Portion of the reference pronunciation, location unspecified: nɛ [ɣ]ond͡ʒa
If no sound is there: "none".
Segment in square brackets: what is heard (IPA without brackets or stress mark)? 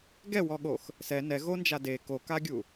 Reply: ɣ